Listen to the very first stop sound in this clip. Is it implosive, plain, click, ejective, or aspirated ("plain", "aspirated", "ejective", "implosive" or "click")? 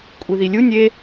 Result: ejective